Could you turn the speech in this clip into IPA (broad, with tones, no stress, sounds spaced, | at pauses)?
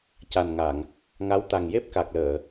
c a˨˩ n ŋ a˨˩˨ ŋ | ŋ a˧˥ w t̪ a˨˩ ŋ j e˦˥ p̚ k a˨˩ k̚ l əː˨˩˨